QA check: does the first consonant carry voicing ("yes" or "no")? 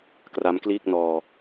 no